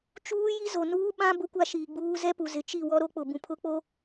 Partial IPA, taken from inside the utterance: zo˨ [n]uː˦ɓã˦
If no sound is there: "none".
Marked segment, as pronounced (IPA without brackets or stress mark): n